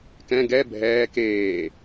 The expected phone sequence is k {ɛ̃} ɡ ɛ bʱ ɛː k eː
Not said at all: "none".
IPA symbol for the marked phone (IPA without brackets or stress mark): ɛ̃